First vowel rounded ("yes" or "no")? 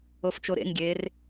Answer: yes